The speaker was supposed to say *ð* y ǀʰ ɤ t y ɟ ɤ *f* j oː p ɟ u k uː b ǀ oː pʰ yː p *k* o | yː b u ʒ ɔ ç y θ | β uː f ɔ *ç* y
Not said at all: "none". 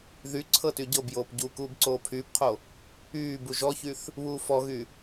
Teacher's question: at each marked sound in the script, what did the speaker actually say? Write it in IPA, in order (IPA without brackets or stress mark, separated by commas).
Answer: ð, b, qʰ, ɣ